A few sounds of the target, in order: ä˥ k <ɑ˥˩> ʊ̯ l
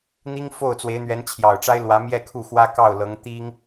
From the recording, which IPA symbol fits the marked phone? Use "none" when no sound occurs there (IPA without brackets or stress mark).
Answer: ɑ˥˩